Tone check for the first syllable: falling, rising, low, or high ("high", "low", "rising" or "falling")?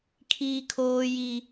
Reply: high